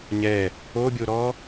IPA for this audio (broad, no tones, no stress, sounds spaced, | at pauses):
ɲ ɛ | o bʲ o ɾ ɔ